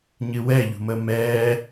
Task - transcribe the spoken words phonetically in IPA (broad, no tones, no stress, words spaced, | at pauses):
ɲɨwɛʎṳməː mɛː